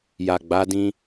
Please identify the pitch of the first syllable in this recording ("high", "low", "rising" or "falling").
low